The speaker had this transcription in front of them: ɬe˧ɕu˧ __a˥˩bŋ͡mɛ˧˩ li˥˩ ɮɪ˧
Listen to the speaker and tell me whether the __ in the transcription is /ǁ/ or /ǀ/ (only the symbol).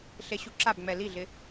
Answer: ǁ